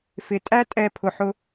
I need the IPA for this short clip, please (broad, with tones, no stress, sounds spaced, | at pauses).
f ɪ˨ tʼ æ˦ tʼ ɛ˧ pʰ ʊ˧ ħ ʊ˦